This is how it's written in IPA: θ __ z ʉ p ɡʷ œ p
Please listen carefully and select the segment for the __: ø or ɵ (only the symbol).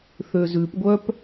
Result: ø